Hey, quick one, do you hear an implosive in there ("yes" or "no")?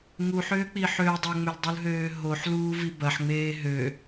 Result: no